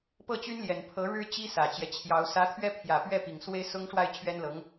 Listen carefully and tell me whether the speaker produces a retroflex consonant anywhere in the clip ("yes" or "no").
yes